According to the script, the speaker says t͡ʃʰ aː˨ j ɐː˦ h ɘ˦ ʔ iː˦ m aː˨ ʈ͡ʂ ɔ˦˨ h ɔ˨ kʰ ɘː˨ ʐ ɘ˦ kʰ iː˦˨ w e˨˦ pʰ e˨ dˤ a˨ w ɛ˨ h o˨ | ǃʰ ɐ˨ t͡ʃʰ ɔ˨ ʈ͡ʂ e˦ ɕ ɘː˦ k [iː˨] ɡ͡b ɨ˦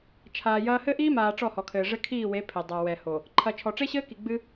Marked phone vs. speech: incorrect: i˨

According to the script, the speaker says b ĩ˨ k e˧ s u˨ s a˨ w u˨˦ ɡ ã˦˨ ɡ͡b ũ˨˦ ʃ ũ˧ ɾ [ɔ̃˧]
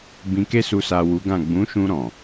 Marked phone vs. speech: incorrect: ɔ̃˨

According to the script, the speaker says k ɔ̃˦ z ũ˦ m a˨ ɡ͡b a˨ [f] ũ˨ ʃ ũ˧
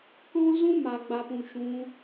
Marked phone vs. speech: incorrect: p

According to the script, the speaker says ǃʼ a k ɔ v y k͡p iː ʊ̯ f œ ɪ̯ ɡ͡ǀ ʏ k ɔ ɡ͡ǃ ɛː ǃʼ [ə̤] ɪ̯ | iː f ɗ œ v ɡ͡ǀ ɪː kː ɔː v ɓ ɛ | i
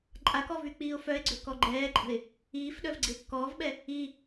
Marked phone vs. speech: correct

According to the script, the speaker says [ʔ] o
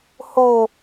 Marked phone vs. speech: incorrect: h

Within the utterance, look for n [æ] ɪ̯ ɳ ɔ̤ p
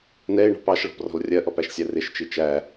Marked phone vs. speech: incorrect: ɛ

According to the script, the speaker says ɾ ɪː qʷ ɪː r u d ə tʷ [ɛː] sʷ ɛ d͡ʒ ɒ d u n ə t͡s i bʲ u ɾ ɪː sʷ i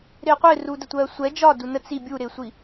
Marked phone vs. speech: incorrect: ɜː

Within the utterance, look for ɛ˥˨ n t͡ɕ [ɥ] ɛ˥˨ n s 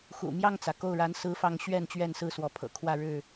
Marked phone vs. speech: correct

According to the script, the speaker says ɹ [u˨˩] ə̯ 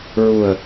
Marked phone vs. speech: correct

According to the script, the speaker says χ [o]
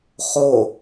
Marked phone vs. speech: correct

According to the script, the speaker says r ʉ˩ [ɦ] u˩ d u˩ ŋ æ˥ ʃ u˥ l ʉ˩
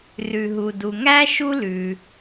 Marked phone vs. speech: correct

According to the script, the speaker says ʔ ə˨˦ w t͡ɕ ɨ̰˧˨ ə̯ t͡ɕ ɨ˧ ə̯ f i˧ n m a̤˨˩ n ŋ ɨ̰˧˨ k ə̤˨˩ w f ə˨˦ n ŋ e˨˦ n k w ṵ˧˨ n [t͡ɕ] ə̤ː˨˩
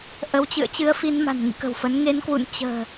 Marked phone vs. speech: correct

